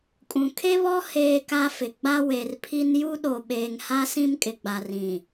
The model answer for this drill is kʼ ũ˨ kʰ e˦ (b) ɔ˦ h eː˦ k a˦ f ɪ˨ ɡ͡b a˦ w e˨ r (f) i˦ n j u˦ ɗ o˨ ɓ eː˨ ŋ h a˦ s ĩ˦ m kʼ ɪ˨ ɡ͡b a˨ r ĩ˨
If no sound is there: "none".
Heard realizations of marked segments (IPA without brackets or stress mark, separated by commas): β, pʰ